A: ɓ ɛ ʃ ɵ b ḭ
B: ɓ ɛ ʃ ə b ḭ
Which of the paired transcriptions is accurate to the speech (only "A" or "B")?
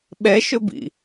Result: A